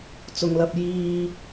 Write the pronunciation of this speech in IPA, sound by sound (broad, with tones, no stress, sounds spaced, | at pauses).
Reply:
t͡s ʊ˨ ŋ l ɐ˧ p̚ j iː˧